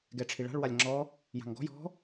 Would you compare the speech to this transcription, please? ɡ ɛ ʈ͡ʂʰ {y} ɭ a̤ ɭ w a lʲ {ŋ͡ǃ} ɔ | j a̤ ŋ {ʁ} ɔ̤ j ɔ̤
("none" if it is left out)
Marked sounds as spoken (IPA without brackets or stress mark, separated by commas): i, ŋ͡ǁ, ɡ